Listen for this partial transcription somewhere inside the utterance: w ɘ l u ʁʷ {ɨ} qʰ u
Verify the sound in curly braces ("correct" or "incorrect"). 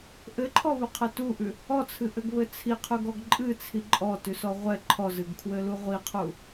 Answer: incorrect